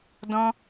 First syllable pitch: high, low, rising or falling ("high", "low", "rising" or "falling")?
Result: high